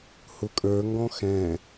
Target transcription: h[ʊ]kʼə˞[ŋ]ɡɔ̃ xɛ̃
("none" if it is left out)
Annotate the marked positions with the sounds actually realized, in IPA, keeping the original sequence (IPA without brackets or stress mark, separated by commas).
ʊ, ŋ